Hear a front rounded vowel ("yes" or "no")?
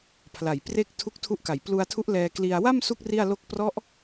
no